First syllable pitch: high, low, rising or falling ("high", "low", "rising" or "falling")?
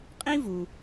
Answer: high